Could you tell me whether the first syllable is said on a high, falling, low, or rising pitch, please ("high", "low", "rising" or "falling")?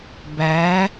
rising